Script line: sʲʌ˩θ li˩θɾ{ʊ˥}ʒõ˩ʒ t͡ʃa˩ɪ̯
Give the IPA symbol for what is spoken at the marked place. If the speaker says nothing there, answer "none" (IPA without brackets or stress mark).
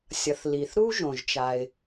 u˥